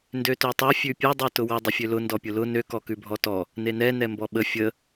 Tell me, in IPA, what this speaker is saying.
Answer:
ndøtøtˤɛ fʲʉpʲɛ dˤøtʊwə dˤəfʲølʊ ndɔpʲʊlʊ nø kɔkʉbʱɔtɔ | nenɛ nɛmbɔɓə fʲə

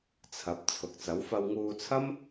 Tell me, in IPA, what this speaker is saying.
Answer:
t͡sʰɐ˨˥p̚ t͡sʰʊ˨k̚t͡sɐ˨˥w fɐ˧wŋuː˧t͡sʰɐ˥m

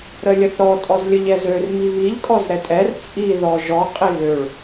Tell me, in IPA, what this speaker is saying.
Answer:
ɾəlʲəθɾɔ tʼɔzlʲəʎɛzør miβiʎ kʼɔzɾɛtʼɛr t͡sʼi ðɔʒɔ qʼiɣøɭ

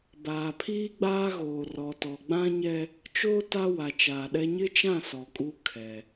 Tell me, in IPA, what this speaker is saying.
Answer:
baː˨pʰiː˦ɡ͡baː˦ɣoː˨ rɔ˨tɔ˨ɡ͡bã˦ɲɛ˦ | t͡ʃoː˦ ta˦wa˨t͡ʃaː˨ɗɛ˦ ɲɪ˦t͡ʃã˦˨ sɔ˨kʼu˦ kʰɛ˨

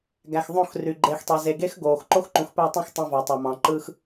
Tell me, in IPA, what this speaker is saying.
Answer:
ɡæ˨xðˤõ˦˨xry˨ ɡ͡ǃe˨xtˤe˨ ze˨ɡe˦xɡoː˨x ǃo˦xǃũ˨xpæ˦˨tˤũ˦˨x tˤɑ̃˦vɑ˨tˤɑ˨mɑ̃˨ ǃɯ˦x

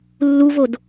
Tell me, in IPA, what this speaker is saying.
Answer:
lːuvod

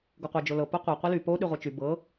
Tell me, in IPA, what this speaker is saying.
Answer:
ɡoqʷa d͡ʒolɤ poqʷa qʷily po ɗyʁʷɤt͡ʃy bɤ

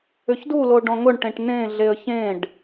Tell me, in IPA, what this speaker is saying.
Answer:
ʏçdulo ɖɔ̃ŋʊɳʈẽʈ nẽɮeə̯ çẽɖ

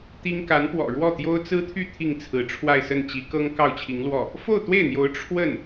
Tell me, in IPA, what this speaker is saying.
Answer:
t̪i˥ŋ ka˧˥npwɔ̰˨˩ɻwɔ˥˩t̪jo˥ʊ̯ t͡sɹ̩˥t̪ʰy˥˧ t̪ʰi˥˩ŋt͡sʰɹ̩˧˥ʈ͡ʂʰwa˥˧ɪ̯sə˥˩n t͡ɕi˧˥kɤ˥ŋ kɑ˥˩ʊ̯t͡ɕʰi˧˥ŋlwɔ˥˩ | fo˥˧ʊ̯t̪we˥˩ɪ̯n̪jo˧˥ʊ̯ ʈ͡ʂʰwə˥˩n

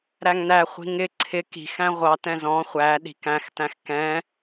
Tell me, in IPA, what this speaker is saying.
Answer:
ɾæŋnæχʷi̤ ŋɪ ǀʰɪ ki̤xæ̃ ʁʷɑtɛ̃ zɔ̃ χʷæ ɗi̤kæ̃xtæ̃x kɛ̃

